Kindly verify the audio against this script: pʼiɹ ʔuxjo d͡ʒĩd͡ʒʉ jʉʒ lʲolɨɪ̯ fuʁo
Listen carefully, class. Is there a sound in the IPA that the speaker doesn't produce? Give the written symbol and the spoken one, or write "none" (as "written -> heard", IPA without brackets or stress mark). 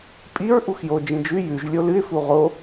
none